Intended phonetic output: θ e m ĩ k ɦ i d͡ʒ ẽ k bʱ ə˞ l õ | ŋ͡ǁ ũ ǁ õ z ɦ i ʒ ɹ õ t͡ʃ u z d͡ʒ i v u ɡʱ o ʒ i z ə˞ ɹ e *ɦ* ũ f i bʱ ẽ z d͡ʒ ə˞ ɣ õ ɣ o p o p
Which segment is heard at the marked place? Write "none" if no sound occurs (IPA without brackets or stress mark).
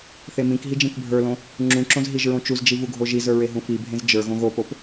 ɦ